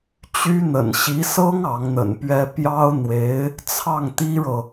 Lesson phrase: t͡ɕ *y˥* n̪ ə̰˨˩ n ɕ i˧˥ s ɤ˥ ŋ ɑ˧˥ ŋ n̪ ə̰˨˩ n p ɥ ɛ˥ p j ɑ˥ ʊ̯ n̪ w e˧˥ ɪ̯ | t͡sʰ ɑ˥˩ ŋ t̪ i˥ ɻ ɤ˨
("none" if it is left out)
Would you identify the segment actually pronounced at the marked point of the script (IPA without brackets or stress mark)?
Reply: y˥